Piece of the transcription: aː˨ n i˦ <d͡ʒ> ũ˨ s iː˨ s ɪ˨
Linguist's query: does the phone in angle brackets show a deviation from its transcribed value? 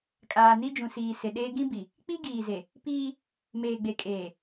no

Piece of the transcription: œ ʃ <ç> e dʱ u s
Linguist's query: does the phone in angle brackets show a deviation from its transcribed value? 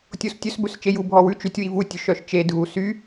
yes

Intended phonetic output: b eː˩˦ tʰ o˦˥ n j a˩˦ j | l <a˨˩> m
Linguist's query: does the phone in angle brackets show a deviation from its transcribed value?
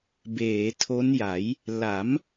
yes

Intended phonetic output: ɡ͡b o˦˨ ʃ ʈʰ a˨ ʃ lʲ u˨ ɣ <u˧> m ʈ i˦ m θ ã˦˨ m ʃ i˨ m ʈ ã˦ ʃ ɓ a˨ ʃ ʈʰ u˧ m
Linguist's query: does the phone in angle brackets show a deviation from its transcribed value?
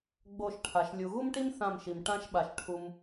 yes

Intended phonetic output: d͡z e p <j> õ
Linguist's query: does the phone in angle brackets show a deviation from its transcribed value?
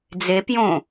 no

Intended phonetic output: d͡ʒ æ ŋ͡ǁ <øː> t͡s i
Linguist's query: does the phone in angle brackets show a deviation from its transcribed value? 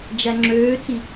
no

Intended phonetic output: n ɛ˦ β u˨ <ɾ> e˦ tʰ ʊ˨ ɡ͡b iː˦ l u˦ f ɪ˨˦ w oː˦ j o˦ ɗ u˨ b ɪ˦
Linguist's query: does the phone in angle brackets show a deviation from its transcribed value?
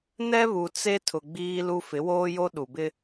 yes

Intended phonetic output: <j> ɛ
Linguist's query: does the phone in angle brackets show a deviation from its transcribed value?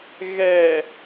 yes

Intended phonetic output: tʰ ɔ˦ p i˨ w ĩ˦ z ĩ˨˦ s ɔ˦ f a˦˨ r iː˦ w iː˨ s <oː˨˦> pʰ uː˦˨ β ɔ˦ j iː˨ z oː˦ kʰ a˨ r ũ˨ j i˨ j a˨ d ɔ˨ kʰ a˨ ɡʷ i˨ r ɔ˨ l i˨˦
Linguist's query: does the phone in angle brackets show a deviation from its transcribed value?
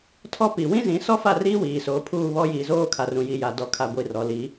no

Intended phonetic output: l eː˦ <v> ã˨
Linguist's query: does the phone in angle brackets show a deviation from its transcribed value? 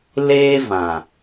no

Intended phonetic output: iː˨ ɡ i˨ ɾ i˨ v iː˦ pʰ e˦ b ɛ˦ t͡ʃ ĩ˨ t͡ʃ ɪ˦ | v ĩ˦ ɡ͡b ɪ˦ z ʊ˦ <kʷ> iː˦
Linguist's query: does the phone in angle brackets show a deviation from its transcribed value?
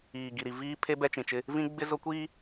no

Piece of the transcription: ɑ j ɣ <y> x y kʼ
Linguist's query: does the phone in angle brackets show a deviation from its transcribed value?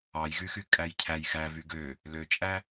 no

